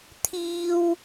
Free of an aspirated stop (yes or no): no